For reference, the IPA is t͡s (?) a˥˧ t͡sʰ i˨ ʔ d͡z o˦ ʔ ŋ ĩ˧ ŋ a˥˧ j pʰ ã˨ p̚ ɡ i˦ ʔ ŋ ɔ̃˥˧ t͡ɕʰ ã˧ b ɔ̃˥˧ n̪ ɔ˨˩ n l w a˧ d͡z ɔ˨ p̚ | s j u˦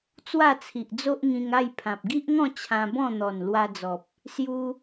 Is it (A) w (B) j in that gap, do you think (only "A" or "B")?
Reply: A